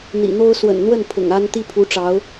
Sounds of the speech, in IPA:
n̪ ḭ˨˩ n̪ o˥ ʊ̯ s w ə̰˨˩ n n̪ w ə˥˩ n pʰ ʊ̰˨˩ ŋ a˥ n t̪ i˥ pʰ u˧˥ ʈ͡ʂ ɑ˧˥ ʊ̯

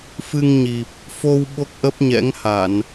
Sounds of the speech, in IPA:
f ɨ˧ ŋ ɲ i˨˩ p̚ | f o˧ w ɓ o˦˥ k̚ ʔ ə˦˥ p̚ ɲ ɛ̰˧˥ ŋ h a˧˩˨ n

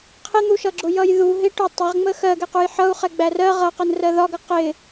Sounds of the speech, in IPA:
qʰ ɪ n̪ u ʃ ʌ ɡ͡ǁ ʊ j ʌ j ð u ɦ ɪ ʈ ʊ tˤ ɪ ʁ ŋ͡m ə x ɜ ɡ ɛ q u j ħ ʌ u̯ χ ɛ ɡ͡b æ r ɜ ʁ ʌ q ə n r ɜ ð ɒ ɡ ʌ q ɪ

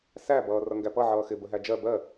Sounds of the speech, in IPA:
s æ b ʌː r ʌ ŋ ɡ æ p ʌ ʕ ʌː x ɪ b ə ɦ æ d͡ʒ ɜ b ɜ

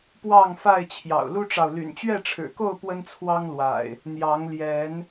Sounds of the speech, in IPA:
p w ɑ˥˨ ŋ f a˥˨ ɪ̯ t͡ɕʰ j ɑ̰˨˩ ʊ̯ l u˦ ʈ͡ʂ ɑ˨ ʊ̯ l y̰˨˩ n t͡ɕ ɥ ɛ˥˨ ʈ͡ʂʰ ɻ̩˨˩ k o˥˨ ʊ̯ p w ə˦ n t͡sʰ w ɑ˦ ŋ l w a̰˨˩ ɪ̯ | n̪ j ɑ˨˦ ŋ l j ɛ˨˦ n

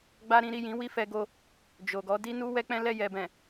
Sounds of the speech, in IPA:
ɡ͡b a˦ ɾ ĩ˦ ɾ i˦˨ j ĩ˨˦ w i˦˨ f ɛ˧ ɡ o˧ | d͡ʒ o˨ ɡ ɔ˨˦ d i˦ n u˦ w ɛ˦ k͡p ɛ̃˦ l ɛ˦˨ j ɛ˨ b ɛ̃˨

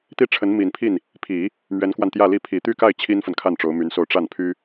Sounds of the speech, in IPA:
t̪ i˥˩ ʈ͡ʂʰ ə˧˥ n m i˨˩ n pʰ i˥˩ n | pʰ i˨˩˦ | m ɥ ɛ˧˥ n k w a˧ n t̪ j ä˥˧ l i˥˩ pʰ i˨˩ t̪ y˥˧ k a˥˩ ɪ̯ t͡ɕʰ i˥ n f ə˨ n kʰ a˥˩ n ʈ͡ʂ o˧˥ ʊ̯ m y˧˥ n s o˥˧ ʊ̯ ʈ͡ʂ a˥˩ n pʰ y˥

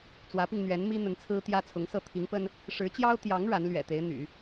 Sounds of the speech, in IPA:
t͡s w ä˧˥ p i˧ ŋ n̪ ɥ ɛ˧˥ n m i˥ n̪ ə˧˥ n t͡sʰ ɹ̩˥ t̪ j ä˥ t͡sʰ ʊ˧˥ ŋ s ɤ˥˩ t̪ʰ i˧˥ ŋ p ə˥ n | ʂ ɻ̩˧˥ t͡ɕ j ɑ˥ ʊ̯ t̪ j ɑ˧˥ ŋ ɻ a˧˥ n l ɥ ɛ̰˨˩ t̪ e˧˥ ɪ̯ n̪ y̰˨˩˦

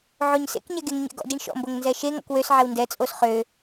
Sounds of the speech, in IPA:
ʕ o ɲ s ḛ k ɲ ɛ ɡ e ŋ ɲ ɛ̰ ɡ ɔ̰ d i ɳ ʃ ɔ̰ m b o ŋ n z ɛ ʃ e ŋ ɔ̰ k w ø s ʕ ɛ w n d ɛ t͡sʼ o s χ ø

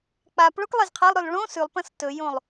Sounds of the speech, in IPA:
k͡p a p ɭ o k lˠ e z qʰ ɐ lˠ ɾ o l ɭ õ s ʉ lˠ p ɐ̃ s t ɵ j õ lˠ

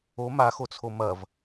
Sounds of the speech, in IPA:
o m a x o t͡sʰ o m ɐ v

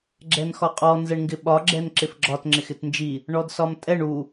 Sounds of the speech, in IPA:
ɡ͡ǁ ɛ n x ɒ qʼ ɔ n z ɛ ɳ ŋ ɡ ɪ ɓ ɒ ɡ͡ǁ ɛ n ǁ ɪ f ɡ͡ǁ ɒ t ŋ͡ǁ ɪ x ɪ t n d͡ʒ i | ɳ ɔ d s ɒ m tʼ ɛ ɳ u

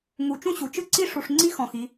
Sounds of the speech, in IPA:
ŋ u˨ t͡ʃ ũ˦ ɕ u˨ t͡ʃ ɯ˦ ǀ i˦ ʂ u˨ ʂ ŋ͡ǀ i˦ x ɔ̃˨ x i˨˦

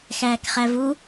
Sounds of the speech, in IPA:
x æː k χ æ v u

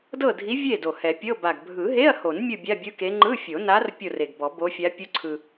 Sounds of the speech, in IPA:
d ɤ˥˨ dʱ i˧˥ vʲ e˥˨ d o˨˩ h ɛ˨˩˦ pʲ ɤ˧˥˧ b a˨˩ ɡ bʱ ɯ˨˩˦ ɦ e˧˥˧ ɐ̯ h o˨˩˦ n mʲ ɯ˥˨ bʲ a˧˥˧ bʲ ɯ˧˥˧ k e˧˥ ŋ͡ǃ ɯ˧˥˧ fʲ o˨˩˦ n a˧˥ r pʲ o˥˨ r e˨˩ ɡ b ɔ˨˩˦ b o˧˥ fʲ a˧˥ pʲ u˧˥ ǀʰ ɯ˨˩

